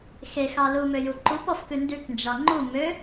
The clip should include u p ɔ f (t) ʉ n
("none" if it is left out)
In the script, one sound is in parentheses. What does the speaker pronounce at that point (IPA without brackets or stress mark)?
k